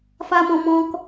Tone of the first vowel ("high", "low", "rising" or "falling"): high